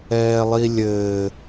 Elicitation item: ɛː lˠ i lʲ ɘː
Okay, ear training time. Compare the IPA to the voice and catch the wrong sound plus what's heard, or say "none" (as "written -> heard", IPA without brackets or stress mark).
none